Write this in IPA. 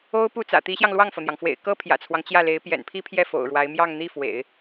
o˥ ʊ̯ p u˥˩ t͡s ä̰˨˩ t̪ i˧˥ ɕ j ɑ˧ ŋ l w ɑ˥˩ ŋ f ɤ˩ n̪ j ɑ˩ ŋ f w ḛ˨˩ ɪ̯ k ɤ˥ pʰ j ä̰˨˩ t͡sʰ w ɑ˦ ŋ t͡ɕ j ä˥˩ l e˧˥ ɪ̯ p j ɛ̰˨˩ n pʰ i˥ pʰ j ɛ˥˩ f o̰˨˩ ʊ̯ ɻ w a˧˥ ɪ̯ m j ɑ˥˧ ŋ n̪ i˥˩ f w ḛ˨˩˦ ɪ̯

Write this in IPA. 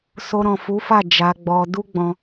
s o˧ ɾ ɔ̃˨ f u˨˦ f a˦˨ d͡ʒ a˧ ɡ͡b ɔ˧ d u˦ ɡ͡b ɔ̃˧

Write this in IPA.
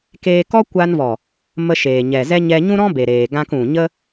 k eː˧ k ɔ˦ kʷ a˧ n v ɔ˨ | m ə˧ ʃ eː˨ ɲ ɛ˨ z ɛ˦ ɲ ɛ˧ ɲ ũ˦ ɾ ɔ̃˦ b e˨ ɾ eː˨ ɡ ã˧ k ũ˨ ɲ ə˦

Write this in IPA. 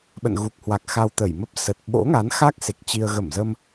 ɓ ə̰˧˨ n ɣ u˨˩ k̚ h w a˨˩ k̚ x a˧ w t̪ ə˧˩ j m ə˦˥ p̚ s ə˨˩ t̚ ɓ o̰˧˥ ŋ a˨˦ n x a˦˥ k̚ s e˨˩ k̚ t͡ɕ i˧ ə̯ ɣ ə˧˩ m z ə˧ m

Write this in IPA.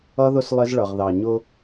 ʌ˦ ð ʊ˦ s lˠ ɪ˦ z ɭ ʌ˨ ʁ ð ɑ˨ ɲ ʊ˦

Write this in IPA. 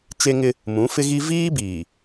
t͡ʃ e˦ ŋ ɪ˦ | m ũ˨˦ f ɪ˦ ɣ i˦ v iː˦ b iː˨

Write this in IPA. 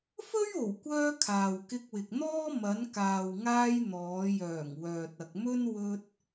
f ɵ˥ ɥ o˨˩ w kʷ œː˧ kʰ aː˨ w k ɪ˧ k̚ w ɪ˨ k̚ n̪ ɔː˥ m ɐ˨˧ n k aː˨ w ŋ aː˧ j n̪ ɔː˨˧ j œː˨˩ ŋ w œː˨ t̚ ɐ˨ k̚ m ɵ˥ n w ɵ˧ t̚

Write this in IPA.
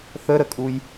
θ ə ɾ ə kʼ u j

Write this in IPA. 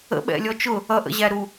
ə̰ ɓ ɛ̰ lʲ ɔ t͡ʃ ʊ | ʌ ʔ ə̰ ʑ æ ɾ u

